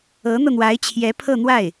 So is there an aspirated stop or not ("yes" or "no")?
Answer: yes